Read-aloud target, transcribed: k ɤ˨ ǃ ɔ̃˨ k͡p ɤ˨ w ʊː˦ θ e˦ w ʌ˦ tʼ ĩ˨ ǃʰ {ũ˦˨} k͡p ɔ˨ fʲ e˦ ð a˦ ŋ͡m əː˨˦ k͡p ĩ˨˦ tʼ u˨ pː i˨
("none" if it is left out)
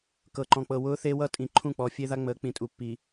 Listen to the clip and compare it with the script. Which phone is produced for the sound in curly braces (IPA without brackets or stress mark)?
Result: ũ˦˨